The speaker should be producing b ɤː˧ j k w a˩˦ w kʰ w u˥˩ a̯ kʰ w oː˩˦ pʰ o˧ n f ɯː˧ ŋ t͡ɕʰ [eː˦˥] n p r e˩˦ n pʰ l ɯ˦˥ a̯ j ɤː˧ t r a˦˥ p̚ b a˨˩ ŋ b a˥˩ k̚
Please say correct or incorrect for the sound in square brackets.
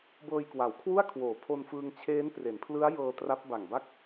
correct